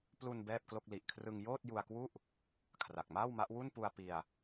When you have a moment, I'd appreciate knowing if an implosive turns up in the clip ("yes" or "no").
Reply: no